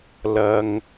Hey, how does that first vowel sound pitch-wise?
high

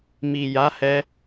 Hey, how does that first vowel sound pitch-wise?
low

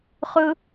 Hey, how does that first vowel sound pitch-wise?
high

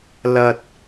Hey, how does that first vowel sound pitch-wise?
low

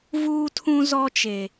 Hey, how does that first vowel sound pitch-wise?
high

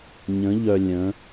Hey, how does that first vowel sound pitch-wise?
rising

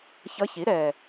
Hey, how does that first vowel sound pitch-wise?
rising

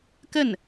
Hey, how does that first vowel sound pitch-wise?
falling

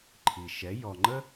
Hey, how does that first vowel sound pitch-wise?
low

